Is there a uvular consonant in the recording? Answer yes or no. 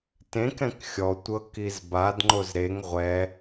yes